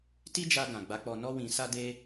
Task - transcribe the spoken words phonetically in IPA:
ti˦d͡ʒa˧ɡã˨ ɡ͡ba˨˦ k͡pɔ˧nɔ˦wĩ˧ sa˦de˦

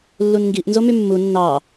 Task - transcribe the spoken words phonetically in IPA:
lːunŋɡiʔnzo mymːu nːɑ

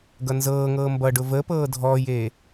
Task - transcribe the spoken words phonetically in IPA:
ɡʌnzɤːŋɤː mbʌ ɖʊvəpɤː dʱɔːjeː

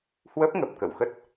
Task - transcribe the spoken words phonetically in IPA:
hwə˦˥p̚ ŋə˨˩p̚kə̰˧˨wxə˦˥t̚

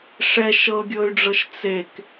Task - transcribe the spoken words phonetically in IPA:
ʂɛ ʃɤɡʲɤy̯ɖ͡ʐɤʃ t͡sek

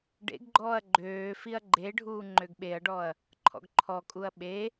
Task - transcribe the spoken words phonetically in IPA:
ɖḛɡɡ͡ǃɔːɐ̯ ɡ͡ǃøː fiɐ̯ɡ͡ǃeɖʱuː ŋ͡ǃøɡɓeɐ̯ɖɔɐ̯ | ǃʰɔ̰ɡǃʰɔkʼuɐ̯ ɓe

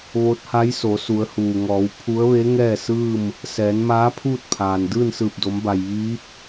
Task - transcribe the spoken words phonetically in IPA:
ʋo˧˥t̚ha˧˥j so˩˧su˩˧ə̯huː˩ŋɔː˩˧w pʰu˧˥ə̯ʋe˧˥ ŋɛː˥˨sɯː˥˨m | sɛː˩˧nmaː˧˥ pʰuː˥˨t̚pʰaː˩n dɯː˥˨nsɯː˧˩p̚do˩˧mba˩j ʋiː˧˥p̚

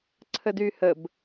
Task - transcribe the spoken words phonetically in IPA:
ǀʰədyhəb

